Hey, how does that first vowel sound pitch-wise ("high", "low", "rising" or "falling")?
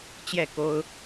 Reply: falling